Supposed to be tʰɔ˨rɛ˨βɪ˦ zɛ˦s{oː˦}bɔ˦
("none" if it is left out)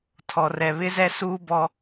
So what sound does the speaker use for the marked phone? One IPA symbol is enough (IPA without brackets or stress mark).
uː˦